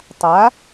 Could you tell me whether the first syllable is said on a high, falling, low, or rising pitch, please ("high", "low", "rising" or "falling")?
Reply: rising